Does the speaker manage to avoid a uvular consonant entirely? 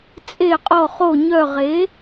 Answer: no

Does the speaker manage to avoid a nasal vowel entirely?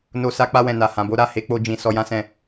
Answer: no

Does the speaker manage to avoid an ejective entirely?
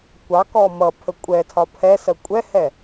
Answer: no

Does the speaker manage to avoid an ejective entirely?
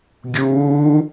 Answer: yes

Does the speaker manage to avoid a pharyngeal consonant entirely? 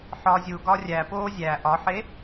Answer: no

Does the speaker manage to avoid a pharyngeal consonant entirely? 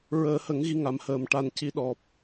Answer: yes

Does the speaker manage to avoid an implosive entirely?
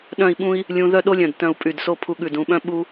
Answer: no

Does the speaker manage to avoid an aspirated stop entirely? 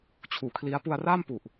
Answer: no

